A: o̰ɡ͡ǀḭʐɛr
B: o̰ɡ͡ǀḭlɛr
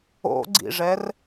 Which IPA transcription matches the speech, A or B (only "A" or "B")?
A